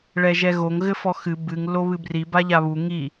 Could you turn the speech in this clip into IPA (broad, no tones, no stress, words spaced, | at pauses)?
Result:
ɭɛʒɛɣoŋ ɣɘfɔxɨ bɨŋ loβɨbri baʎaβu ŋi